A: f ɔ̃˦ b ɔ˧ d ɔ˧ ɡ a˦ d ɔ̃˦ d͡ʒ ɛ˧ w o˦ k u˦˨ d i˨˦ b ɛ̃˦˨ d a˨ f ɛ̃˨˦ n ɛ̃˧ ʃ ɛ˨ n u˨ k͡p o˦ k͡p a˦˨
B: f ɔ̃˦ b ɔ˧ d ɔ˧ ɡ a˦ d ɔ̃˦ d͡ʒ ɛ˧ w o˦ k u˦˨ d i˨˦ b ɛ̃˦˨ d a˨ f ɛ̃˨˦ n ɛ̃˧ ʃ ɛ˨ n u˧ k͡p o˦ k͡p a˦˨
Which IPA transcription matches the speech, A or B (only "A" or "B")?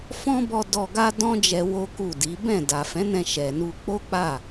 B